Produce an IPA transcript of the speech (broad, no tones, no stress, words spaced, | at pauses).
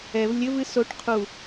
ɛv lʲɘvɨ soʈ qʰu